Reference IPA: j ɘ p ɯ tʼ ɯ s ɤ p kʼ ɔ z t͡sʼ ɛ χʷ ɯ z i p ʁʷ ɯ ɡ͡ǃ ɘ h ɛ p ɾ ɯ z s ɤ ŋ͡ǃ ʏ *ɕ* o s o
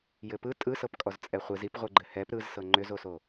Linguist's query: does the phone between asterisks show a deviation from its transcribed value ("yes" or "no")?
yes